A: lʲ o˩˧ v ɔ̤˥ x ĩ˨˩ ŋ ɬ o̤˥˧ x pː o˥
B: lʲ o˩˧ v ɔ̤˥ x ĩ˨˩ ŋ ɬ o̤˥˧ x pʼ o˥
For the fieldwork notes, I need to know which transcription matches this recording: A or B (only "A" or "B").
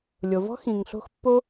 A